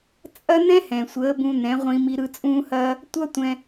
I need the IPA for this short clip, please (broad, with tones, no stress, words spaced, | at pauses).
t͡sʼɐ˦ n̪ɛ̃˦hɛ̃˨sʷəː˨˦ bũ˧n̪ɛ̃˨˦ʁʷĩ˧ mi˧ɾɯ˧ t͡sʼũː˧hɐː˧ | tʷʌ˦tʷɛ̃˧